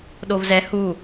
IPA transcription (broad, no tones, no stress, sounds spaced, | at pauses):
ɗ o v z ɛ h u